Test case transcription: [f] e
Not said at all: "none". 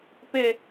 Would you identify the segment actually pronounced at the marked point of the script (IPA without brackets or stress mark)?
p